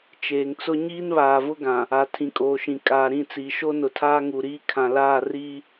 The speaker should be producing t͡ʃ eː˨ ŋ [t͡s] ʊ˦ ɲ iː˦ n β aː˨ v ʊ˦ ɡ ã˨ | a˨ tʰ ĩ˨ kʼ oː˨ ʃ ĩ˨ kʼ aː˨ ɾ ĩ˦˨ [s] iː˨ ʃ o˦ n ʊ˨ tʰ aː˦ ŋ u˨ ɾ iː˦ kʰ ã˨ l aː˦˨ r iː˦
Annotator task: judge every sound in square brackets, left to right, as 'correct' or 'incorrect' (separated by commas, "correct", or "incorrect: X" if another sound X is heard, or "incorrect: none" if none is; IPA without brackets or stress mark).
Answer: correct, incorrect: t͡s